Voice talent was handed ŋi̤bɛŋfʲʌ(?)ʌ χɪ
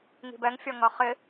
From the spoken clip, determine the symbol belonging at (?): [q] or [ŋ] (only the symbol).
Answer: ŋ